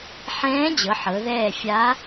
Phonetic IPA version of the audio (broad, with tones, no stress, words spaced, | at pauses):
ħɛ̃ː˧˥d͡ʑɤ˩˧ ħɤ˩˧ðɛː˦˨fʲa˧˥